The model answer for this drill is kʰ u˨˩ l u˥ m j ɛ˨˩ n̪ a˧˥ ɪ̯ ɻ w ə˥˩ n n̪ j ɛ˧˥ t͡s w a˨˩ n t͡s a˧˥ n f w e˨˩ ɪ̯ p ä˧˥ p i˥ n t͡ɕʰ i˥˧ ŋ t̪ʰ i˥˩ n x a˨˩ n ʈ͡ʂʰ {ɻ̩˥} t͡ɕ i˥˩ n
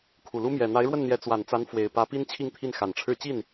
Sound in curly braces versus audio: incorrect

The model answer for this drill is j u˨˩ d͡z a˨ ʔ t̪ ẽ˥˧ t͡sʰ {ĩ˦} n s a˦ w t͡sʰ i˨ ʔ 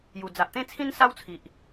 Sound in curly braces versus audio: correct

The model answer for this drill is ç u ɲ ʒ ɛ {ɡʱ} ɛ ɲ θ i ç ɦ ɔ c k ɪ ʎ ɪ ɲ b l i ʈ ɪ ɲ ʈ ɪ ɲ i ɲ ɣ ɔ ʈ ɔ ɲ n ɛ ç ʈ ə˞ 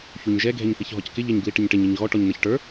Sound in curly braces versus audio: correct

